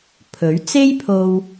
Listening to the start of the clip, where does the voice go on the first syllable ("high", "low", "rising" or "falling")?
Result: rising